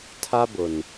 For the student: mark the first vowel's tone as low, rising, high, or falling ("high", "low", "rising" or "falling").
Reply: high